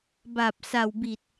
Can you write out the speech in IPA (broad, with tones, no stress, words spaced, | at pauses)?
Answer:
ba˨˩p̚sa˨˩wbi˨˩t̚